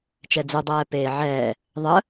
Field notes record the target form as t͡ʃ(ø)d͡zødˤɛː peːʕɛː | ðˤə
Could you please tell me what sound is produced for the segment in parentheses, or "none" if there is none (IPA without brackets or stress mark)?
ɛ